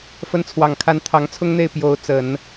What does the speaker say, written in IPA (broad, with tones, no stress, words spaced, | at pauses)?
fə˧˥nt͡sʰwɑ˨˩ŋkʰa˧˥n t̪ʰɑ˧˥ŋt͡sʰʊ˥ŋn̪e˥˩ɪ̯ pjo˧˥ʊ̯t͡sə˨˩˦n